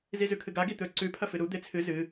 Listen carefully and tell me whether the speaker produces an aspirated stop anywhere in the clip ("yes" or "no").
yes